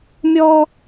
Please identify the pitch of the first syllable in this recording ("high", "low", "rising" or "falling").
high